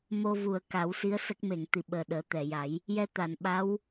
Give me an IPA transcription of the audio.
mo˧vu˨˩ə̯ka˨˩˦w si˧˥ə̯sə˦˥k̚ me˨˩˨ŋt̪i˨˩˨ɓəː˨˩ ɗəː˨˩˦t̪ɛ˨˩˨ja˨˩˦j | jɛ˧t̪a˨˩˨nɓa˧˥w

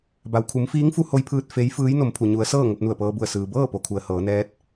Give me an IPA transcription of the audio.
ba˩wkʰu˩˧mfiː˧˥ŋfu˧ ho˧jpʰɯː˧t̚ fe˧˥j fɯː˧˥jno˩˧mpʰu˩ ɲu˩˧ə̯sɤː˥˨ ŋo˧p̚nu˧˩ə̯pɤː˧bu˧˩ə̯ sɯː˩bɤː˥˨ po˩kʰu˩ə̯ hɤː˩˧nɛː˧˥t̚

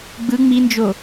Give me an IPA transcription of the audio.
ɡ͡bɯ ŋ͡mind͡ʒo

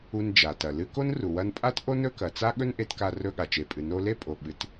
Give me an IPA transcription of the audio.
u˧nd͡ʒa˩tɐ˩ lɨ˧ ko˥nru˩wɐ˧npʼa˥t ʔo˥nɵ˥kɐ˩t͡sa˥ ɠɵ˥nʔe˧t ka˧rɵ˧ ɠa˩t͡ʃe˩pʼɨ˩ no˧le˥pʼo˩ ɓɨ˩t

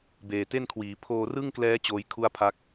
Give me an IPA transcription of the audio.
beː˨˩te˥˩nkʰwiː˩˦ pʰoː˧rɯ˥˩ŋklɛː˦˥ t͡ɕoː˦˥jkʰu˥˩a̯pʰa˦˥k̚

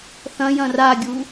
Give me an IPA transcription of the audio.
θɐ̃jɐ̃ raɡʲu

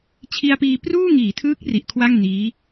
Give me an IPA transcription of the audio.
t͡ɕʰi˧a̯piː˧ pruː˥˩ ŋiː˩˦tʰɯː˦˥k̚ ri˨˩ʔkʰwa˥˩ŋ niː˦˥

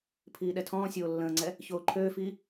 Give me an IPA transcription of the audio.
pʰiːɗɛtʰɔ̃ːsʲoː lːə̃ːŋ͡ǀɛ | çoːǃʰøːfiː

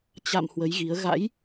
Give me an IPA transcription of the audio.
t͡ɕa̰˧˨m hwə˨˦jɣi˨˦ə̯ ɣa̰˧˥j

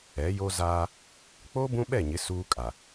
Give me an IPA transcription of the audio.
ɛ˨˦jo˦zaː˦ | k͡po˦ bũ˦ɓɛ˦˨ɲɪ˨˦ suː˦kʼa˨

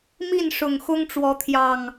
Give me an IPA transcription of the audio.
mi˥˨nʂʊ˨˩ŋxʊ˦ŋ ʈ͡ʂwɔ˨˦t̪ʰjɑ˨˩ŋ

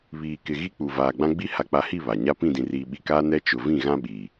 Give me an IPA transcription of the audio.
βiː˨kɪ˨ɣi˦k͡pu˨ vaː˨ɡ͡bã˦ ɡ͡bi˦ ha˨k͡pa˨hi˦˨ βa˨ ɲa˦pĩ˦˨dĩ˨riː˨ ɓi˨kaː˦ nɛ˦t͡ʃʊ˨ vĩ˦˨ɣã˦ɓiː˨

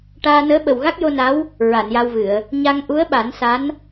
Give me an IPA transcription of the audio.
ʈaː˧nəː˧˥ ɓə˨˩wɣa˦˥k̚jo˧na˧˥w | ɹa˨˩˨nja˧wvɨ˨˩˨ə̯ | ɲa˧ŋʔu˧˥ə̯ɓa˨˩˦n sa˧˥n

